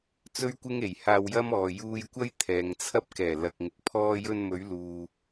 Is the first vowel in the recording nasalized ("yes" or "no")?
no